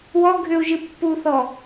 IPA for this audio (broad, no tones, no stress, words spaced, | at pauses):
wɔ ɡʱʏu̯ ʒɨpːuθɔ